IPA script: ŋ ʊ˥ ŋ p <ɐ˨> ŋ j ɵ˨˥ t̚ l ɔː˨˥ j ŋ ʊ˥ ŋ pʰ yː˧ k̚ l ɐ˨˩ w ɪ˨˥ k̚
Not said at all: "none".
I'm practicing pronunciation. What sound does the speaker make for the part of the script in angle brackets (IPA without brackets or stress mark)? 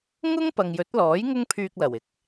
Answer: ɐ˨